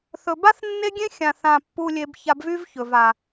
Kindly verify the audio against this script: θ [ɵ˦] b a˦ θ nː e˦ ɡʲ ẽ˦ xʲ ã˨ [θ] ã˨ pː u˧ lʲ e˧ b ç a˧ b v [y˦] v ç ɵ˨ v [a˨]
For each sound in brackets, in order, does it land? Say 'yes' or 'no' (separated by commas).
no, yes, yes, yes